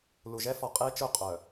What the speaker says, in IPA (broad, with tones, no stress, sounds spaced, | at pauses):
l u˨ ʒ ɛ˦ f ɔ˨ qʼ e˦ t͡ʃ ʊ˦ qʼ œ˨